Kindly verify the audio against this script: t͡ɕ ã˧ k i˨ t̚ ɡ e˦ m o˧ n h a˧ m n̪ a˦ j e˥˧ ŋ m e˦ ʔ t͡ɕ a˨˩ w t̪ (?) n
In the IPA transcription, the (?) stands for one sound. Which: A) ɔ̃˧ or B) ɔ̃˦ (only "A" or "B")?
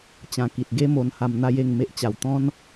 B